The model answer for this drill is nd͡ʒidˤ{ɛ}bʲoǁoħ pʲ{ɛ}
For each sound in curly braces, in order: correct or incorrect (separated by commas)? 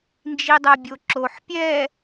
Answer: correct, correct